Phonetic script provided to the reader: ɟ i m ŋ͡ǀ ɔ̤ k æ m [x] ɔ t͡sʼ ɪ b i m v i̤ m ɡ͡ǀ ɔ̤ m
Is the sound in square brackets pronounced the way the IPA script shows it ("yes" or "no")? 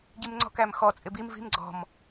yes